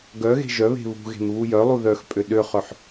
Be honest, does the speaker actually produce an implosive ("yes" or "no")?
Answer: yes